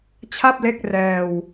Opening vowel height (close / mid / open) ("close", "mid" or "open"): open